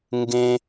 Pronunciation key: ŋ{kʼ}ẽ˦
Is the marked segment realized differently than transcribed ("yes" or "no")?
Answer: yes